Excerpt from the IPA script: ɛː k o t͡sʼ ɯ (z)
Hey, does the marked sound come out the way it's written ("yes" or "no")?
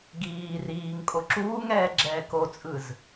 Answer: yes